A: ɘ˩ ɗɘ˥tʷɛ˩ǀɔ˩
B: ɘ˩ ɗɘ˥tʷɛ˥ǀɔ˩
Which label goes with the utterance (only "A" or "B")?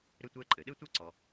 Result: B